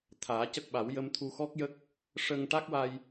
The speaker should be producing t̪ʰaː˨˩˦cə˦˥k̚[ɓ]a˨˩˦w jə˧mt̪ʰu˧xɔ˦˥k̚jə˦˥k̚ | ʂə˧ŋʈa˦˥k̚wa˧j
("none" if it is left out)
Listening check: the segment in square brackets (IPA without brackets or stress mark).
ɓ